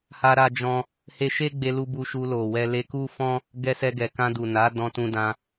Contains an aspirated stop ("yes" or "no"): no